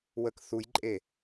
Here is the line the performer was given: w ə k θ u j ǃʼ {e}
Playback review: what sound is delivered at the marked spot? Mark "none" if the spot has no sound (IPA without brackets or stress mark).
e